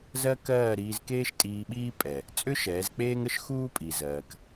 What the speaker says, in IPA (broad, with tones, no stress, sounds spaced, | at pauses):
z ɜ˦ k ɜː˦˨ ɾ iː˧ z k eː˦ ʃ tʼ iː˧ ɓ iː˦ pʼ ɛ˨ | t͡sʼ ʏ˦ ʃ ɛː˨˦ z k͡p eː˦ ŋ ə˦ ʃ x uː˦ pʼ i˨ z ɜː˧ k